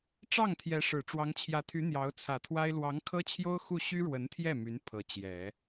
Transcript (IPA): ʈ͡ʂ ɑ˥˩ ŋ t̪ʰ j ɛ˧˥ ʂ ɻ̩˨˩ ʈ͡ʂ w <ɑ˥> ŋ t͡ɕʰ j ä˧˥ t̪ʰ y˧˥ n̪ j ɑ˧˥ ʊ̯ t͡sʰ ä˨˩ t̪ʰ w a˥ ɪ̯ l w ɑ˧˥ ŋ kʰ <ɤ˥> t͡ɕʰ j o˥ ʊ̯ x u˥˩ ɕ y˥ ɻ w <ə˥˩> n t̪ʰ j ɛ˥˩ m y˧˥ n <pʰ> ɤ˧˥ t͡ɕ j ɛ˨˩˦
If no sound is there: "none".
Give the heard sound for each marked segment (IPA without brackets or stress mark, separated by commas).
ɑ˧˥, ɤ˥, ə˧˥, pʰ